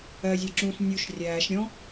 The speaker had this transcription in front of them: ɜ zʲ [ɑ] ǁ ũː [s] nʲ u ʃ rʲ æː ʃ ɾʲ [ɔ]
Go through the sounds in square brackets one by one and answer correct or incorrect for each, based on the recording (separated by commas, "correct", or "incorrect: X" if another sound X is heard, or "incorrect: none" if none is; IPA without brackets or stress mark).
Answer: correct, correct, incorrect: ɔ̃